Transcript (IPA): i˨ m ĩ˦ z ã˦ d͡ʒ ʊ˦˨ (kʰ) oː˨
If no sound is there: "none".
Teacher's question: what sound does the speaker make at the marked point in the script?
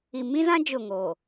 ŋ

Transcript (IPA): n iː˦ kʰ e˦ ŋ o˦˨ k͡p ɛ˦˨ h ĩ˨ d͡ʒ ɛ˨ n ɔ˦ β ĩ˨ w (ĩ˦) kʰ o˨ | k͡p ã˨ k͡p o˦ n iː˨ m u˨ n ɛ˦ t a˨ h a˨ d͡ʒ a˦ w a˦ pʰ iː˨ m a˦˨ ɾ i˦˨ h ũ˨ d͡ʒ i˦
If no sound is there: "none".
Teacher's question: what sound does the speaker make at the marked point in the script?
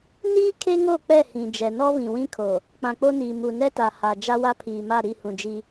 ĩ˦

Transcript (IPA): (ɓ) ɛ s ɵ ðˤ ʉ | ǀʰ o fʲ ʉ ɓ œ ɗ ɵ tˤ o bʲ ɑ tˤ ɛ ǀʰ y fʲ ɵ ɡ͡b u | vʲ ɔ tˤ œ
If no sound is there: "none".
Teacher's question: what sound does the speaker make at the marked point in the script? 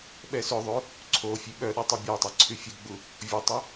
ɓ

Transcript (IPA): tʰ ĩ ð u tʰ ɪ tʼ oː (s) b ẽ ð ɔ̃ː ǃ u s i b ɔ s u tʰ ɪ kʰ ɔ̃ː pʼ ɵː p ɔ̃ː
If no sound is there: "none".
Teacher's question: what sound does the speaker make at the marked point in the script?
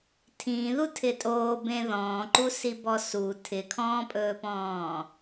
none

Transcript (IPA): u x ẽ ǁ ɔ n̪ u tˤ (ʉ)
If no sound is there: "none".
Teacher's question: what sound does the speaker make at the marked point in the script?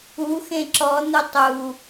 u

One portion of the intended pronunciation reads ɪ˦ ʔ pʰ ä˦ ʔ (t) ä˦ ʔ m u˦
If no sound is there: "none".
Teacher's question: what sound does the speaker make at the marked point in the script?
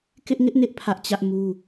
t͡ɕ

